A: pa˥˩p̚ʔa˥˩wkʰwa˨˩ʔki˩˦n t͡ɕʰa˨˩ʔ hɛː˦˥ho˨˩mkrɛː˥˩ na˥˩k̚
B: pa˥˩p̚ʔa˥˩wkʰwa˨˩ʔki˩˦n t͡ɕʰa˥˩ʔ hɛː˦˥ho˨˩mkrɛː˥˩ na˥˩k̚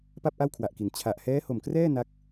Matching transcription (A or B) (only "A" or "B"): A